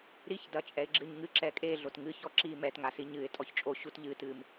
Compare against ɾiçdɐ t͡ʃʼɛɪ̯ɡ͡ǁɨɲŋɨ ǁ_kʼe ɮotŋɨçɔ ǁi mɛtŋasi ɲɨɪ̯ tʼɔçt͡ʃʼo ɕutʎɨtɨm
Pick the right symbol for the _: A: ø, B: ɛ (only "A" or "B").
B